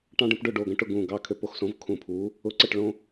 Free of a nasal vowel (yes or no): no